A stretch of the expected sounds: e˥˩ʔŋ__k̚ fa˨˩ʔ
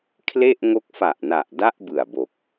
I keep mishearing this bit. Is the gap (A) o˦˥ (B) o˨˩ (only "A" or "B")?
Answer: A